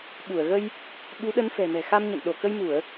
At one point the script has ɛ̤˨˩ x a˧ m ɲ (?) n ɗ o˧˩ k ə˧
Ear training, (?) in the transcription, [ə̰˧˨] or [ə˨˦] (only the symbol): ə̰˧˨